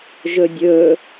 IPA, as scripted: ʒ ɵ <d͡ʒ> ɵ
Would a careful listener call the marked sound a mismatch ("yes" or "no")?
yes